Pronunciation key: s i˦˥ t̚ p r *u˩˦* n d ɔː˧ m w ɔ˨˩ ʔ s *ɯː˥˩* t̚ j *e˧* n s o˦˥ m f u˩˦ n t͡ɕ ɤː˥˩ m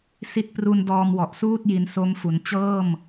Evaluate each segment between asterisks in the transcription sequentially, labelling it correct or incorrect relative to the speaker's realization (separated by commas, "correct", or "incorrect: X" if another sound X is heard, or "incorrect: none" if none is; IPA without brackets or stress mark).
incorrect: u˧, incorrect: uː˥˩, incorrect: i˧